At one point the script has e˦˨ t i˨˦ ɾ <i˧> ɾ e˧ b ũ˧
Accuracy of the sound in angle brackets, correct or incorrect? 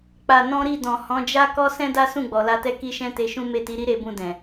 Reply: incorrect